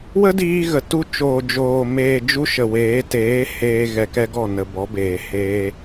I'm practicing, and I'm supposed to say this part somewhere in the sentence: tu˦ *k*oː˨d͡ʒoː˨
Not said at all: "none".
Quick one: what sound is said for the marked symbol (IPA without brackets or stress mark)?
t͡ʃ